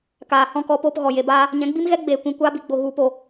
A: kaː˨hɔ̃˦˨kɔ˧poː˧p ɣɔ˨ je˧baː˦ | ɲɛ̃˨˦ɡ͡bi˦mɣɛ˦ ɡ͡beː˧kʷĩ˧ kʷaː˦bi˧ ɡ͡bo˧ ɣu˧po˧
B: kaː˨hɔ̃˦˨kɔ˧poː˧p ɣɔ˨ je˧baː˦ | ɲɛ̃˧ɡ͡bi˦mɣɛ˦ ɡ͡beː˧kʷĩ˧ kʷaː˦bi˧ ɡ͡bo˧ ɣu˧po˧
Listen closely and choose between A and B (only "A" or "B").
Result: A